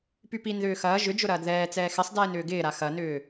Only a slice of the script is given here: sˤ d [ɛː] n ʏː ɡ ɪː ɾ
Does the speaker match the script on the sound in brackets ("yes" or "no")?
yes